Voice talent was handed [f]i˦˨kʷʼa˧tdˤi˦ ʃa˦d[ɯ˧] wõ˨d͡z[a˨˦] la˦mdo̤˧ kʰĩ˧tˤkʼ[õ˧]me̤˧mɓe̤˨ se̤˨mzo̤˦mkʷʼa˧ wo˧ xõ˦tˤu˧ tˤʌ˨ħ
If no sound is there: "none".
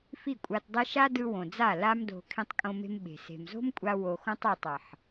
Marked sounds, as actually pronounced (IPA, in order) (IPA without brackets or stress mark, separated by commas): f, ɯ˧, a˦˨, õ˧